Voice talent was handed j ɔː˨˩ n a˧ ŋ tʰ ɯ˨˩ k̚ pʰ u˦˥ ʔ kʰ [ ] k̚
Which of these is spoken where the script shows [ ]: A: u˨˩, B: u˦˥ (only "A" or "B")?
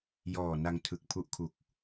A